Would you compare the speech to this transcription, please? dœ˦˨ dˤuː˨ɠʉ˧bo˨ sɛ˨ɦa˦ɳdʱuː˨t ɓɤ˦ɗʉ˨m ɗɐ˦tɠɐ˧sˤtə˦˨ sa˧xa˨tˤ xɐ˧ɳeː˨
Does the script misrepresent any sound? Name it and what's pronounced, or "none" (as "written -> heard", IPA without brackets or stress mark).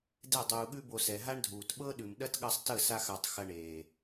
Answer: œ˦˨ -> ɛ˦˨